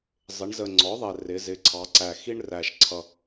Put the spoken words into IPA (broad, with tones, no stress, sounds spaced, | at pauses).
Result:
zˤ ɪ˩˧ ɳ z ə˨˩ ŋ͡ǀ ɔ˩˥ ðˤ ɛ˨˩ r ɪ˩˧ z ɪ˩˥ ǀʰ ɑ˩˧ ǀ æ˨˩ x i˦ ɳ r æ˨˩ ʃ ǀʰ ʌ˨˩